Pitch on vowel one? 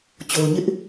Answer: low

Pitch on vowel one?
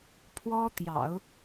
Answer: high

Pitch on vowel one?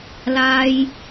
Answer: high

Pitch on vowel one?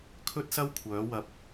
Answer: high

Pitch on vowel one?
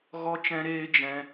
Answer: high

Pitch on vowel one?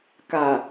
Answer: low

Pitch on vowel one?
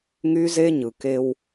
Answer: high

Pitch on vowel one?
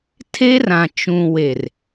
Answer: high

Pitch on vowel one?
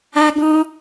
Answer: high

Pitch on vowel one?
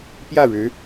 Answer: falling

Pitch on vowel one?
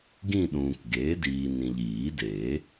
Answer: falling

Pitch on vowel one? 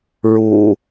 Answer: low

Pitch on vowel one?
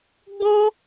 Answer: high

